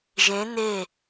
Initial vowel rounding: unrounded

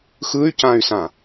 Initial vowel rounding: unrounded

